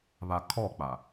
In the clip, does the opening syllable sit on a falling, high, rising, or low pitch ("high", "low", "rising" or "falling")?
low